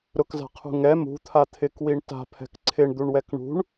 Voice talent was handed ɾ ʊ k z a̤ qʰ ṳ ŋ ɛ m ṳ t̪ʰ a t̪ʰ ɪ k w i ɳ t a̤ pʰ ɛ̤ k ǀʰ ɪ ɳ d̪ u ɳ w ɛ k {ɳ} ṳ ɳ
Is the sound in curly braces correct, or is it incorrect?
correct